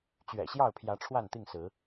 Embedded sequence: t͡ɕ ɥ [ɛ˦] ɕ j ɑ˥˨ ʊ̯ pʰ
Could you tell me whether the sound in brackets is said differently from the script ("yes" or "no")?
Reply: yes